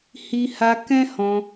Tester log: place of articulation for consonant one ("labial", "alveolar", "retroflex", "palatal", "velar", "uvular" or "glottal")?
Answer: glottal